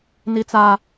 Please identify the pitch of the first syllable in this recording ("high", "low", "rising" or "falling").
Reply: high